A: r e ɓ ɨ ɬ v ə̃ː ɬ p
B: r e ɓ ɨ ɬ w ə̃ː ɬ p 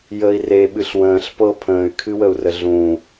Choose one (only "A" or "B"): B